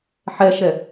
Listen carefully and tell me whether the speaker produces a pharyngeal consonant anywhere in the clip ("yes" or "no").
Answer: yes